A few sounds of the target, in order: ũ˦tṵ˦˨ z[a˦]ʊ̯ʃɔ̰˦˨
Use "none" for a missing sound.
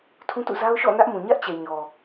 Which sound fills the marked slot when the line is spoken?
a˦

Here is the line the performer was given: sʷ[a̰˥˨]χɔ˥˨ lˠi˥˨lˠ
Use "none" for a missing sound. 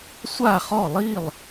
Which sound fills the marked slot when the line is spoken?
a˥˨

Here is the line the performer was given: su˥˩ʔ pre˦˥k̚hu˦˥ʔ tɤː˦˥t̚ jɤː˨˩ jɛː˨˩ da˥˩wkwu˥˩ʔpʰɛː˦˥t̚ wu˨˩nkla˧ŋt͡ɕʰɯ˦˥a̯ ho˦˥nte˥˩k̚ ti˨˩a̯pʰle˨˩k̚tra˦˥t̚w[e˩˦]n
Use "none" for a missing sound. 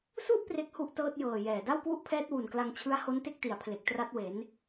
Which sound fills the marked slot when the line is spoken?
e˩˦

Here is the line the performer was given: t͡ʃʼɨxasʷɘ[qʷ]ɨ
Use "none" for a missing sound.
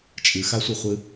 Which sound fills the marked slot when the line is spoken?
χʷ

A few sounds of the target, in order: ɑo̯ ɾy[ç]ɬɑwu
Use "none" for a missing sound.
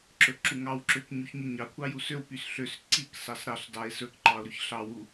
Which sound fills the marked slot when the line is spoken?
ç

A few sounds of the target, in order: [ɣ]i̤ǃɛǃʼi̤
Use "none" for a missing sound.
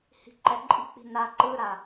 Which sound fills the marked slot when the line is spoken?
h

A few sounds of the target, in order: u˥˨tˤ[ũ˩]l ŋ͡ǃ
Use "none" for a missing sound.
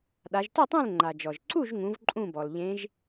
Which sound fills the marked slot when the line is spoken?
ũ˥˨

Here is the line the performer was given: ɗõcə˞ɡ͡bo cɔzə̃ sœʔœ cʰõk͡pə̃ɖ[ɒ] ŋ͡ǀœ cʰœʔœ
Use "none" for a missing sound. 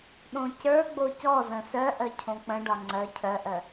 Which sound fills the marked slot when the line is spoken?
ɒ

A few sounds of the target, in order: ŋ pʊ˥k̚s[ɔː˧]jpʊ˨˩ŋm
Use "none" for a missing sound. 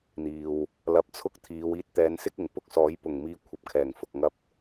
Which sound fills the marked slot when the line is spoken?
ɔː˨˥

